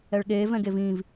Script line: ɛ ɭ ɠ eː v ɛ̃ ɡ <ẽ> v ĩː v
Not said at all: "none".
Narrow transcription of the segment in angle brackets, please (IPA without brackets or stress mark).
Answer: e